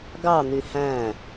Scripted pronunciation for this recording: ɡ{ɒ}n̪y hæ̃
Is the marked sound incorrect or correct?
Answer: incorrect: ɑ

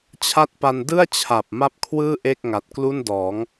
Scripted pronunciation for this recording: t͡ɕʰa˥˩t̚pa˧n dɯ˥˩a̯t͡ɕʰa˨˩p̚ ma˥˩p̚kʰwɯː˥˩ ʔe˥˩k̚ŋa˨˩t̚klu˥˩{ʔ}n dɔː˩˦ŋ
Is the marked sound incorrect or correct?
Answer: incorrect: none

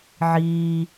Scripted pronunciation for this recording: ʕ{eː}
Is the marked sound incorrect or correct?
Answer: incorrect: iː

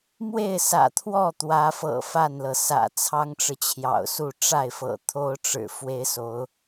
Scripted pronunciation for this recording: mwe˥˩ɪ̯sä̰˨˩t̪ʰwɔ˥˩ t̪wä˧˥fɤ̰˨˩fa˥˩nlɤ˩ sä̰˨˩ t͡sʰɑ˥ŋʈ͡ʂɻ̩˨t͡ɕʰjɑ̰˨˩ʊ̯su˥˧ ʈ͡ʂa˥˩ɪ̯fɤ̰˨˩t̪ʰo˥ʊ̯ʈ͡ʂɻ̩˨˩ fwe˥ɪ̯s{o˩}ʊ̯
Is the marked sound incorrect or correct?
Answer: incorrect: o˧˥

